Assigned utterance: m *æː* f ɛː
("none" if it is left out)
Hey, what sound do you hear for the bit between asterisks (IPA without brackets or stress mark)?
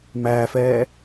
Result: æː